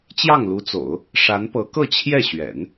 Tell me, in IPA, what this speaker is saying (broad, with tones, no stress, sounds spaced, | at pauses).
t͡ɕ j ɑ˥˩ ŋ l u˧˥ t͡s o̰˨˩˦ ʊ̯ | ʂ a˧˥ n p ɤ˧˥ k ɤ˥˧ t͡ɕʰ j ɛ˥˩ ɕ ɥ ɛ̰˨˩˦ n